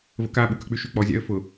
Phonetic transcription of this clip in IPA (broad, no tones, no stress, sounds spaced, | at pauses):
v ə̰ k a ɓ u k ə k͡p y ʃ y k͡p ɔ zʲ a̰ ə̯ f ʊ